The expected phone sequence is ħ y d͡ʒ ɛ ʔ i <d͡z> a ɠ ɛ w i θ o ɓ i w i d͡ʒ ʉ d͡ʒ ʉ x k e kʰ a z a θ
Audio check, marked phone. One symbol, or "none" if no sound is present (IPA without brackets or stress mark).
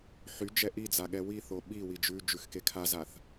d͡z